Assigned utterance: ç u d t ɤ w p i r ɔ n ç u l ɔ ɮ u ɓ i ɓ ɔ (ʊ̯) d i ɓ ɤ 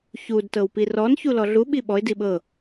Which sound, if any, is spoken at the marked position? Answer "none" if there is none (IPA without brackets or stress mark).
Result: ɪ̯